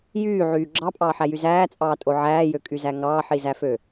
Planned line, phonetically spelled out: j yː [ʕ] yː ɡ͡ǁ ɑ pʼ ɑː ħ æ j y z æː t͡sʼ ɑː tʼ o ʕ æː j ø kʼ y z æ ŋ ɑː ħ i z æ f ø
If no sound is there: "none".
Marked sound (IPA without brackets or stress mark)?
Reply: ʕ